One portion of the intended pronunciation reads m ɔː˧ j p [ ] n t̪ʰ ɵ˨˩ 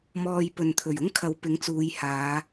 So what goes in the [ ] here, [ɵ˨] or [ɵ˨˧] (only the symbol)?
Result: ɵ˨